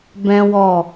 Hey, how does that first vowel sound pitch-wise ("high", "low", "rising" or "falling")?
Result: high